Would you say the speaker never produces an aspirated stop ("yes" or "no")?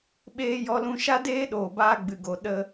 yes